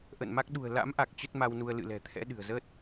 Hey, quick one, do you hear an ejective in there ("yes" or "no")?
no